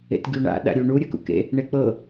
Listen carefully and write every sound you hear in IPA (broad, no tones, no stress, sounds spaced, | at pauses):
ḛ t ɡʲ u ɳ a̰ ɗ a̰ ɾʲ u ɳ u ɾʲ ɤ k ṵ k ḛ | ɳ e k͡p ɤ